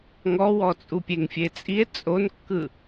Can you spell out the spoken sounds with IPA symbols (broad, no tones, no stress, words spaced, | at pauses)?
ŋɔwɔ t͡sʼupʲeŋfʲet͡sʼie̯ t͡sʼonkːɯ